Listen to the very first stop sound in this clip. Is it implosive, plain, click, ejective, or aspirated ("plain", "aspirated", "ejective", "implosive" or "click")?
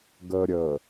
plain